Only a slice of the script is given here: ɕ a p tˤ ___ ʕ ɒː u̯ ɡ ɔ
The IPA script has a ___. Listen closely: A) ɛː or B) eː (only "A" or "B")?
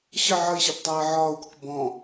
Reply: A